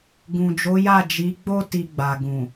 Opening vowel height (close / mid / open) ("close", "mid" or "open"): close